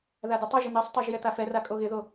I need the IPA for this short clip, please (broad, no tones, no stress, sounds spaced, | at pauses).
ð a d ɪ tˤ e ʒ ɪ n̪ e sˤ tˤ a ʒ j ɛ t̪ a f ɛ r a kʼ o ɣ ɪ ð o